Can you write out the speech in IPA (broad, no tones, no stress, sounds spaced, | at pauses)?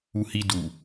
u h i d u